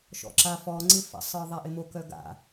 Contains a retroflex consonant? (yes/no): no